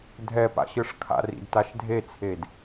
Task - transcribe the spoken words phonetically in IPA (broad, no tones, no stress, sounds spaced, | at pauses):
dʱ ɛ p a̰ ɕ ɯ ʂ kʰ a̰ r ḭ d t a ʃ dʱ e t͡sʰ e d